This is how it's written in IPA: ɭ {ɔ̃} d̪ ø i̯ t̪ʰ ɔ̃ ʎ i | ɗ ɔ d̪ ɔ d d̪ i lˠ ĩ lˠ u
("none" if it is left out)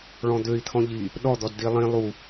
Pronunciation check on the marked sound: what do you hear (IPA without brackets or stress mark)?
ɔ̃